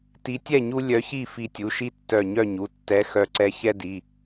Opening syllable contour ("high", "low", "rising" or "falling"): rising